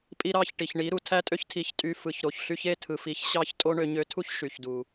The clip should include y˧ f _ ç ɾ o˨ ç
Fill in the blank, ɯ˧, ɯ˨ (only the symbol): ɯ˨